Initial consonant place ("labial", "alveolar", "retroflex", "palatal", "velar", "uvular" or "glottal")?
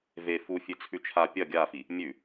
labial